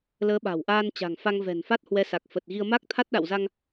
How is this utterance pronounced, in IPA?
l əː˨˦ ɓ a̤˨˩ w ʔ aː˧ n t͡ɕ a̤˨˩ ŋ f a˧ ŋ v ɛ̤˨˩ n f a˦˥ t̚ h w ɛ˨˦ s a˨˩ k̚ f ə˨˩ t̚ ɣ i˧ ə̯ m a˦˥ k̚ t̪ʰ a˦˥ t̚ ɗ a̰˧˨ w z a˧ ŋ

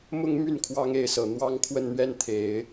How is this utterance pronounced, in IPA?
m ʊ˥ ŋ m y˥˩ n kʰ w ɑ˥ ŋ e˧˥ ɪ̯ s ɤ˨˩ n̪ w ɑ˥ ŋ kʰ w ə˥˧ n n̪ ɥ ɛ˥˩ n t̪ʰ e˨˩˦ ɪ̯

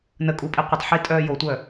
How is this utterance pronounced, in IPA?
n ə kʼ uː pʼ i qʷ ə tˤ ħ i tʼ œː j o tʷ œ

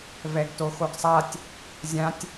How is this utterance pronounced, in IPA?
v ɛ ɡ t o x o ɡ sˤ a tʲ | zʲ ã tʲ

